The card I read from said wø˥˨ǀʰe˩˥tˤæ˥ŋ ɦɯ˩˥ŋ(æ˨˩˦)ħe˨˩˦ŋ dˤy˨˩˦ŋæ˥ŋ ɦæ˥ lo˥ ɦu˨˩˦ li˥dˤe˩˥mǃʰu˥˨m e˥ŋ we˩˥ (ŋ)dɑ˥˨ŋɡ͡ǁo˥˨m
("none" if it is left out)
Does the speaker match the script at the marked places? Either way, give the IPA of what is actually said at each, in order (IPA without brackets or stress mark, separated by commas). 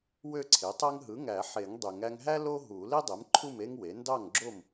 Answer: æ˨˩˦, n